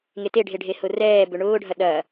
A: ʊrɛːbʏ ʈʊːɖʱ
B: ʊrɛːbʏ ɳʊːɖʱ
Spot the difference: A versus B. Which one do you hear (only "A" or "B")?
B